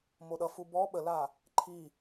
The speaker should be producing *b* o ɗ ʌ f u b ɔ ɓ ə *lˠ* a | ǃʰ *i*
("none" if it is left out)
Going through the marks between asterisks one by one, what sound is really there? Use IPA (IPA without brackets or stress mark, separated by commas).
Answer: m, l, i